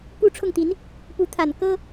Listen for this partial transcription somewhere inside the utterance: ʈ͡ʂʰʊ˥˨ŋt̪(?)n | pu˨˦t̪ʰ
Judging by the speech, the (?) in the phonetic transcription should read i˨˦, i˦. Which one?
i˨˦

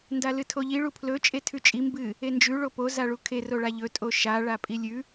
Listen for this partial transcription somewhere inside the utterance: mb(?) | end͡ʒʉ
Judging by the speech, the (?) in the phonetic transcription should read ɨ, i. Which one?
ɨ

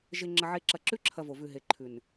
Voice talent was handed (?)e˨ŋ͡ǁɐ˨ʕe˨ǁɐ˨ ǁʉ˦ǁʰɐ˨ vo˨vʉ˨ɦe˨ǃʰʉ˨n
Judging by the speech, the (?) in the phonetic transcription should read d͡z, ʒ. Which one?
ʒ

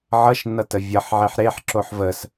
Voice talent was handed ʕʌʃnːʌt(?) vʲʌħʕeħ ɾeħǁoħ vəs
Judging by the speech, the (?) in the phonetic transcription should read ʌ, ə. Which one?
ə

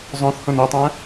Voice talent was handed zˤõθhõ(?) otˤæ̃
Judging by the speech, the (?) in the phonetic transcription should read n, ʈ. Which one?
n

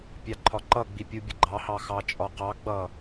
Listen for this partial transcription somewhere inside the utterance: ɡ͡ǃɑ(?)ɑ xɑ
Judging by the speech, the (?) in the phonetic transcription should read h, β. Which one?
h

